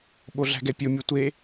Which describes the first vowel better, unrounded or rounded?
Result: rounded